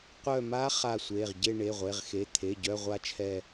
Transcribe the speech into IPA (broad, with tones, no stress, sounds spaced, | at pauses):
qʷ œ˦˨ m a˦˥ χ a˦˨ sʷ e˩˧˩ ʁ ɟ e˦˨ ɳ e˩˧˩ ʁʷ e˩˧˩ ʁ x e˩˧˩ t̪ʰ e˩˧˩ ɟ œ˧˥˧ ʁʷ a˦˥ t͡ʃʰ ɛ˦˨